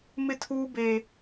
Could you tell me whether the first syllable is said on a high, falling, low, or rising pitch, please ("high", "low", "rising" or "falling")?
high